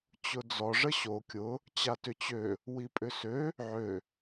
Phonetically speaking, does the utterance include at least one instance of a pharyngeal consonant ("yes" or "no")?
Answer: yes